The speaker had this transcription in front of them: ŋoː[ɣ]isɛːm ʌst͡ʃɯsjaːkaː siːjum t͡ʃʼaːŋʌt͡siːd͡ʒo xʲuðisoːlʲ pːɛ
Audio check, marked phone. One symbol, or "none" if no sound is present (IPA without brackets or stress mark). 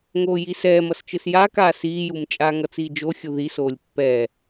j